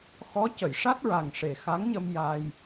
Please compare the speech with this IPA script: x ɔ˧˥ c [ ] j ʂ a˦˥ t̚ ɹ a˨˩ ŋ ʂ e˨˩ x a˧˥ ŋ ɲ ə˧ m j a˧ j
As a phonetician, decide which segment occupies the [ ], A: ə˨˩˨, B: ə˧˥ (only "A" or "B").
A